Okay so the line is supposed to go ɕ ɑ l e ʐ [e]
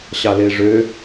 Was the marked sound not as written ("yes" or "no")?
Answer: yes